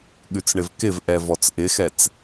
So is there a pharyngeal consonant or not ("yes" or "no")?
no